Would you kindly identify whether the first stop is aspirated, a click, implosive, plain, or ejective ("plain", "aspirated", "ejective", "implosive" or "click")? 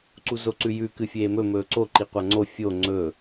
click